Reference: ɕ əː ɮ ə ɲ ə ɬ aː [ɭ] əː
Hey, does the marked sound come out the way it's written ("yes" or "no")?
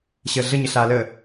no